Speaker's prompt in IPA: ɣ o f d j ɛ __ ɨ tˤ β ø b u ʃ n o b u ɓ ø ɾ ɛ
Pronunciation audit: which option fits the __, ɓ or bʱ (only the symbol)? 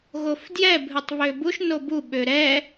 bʱ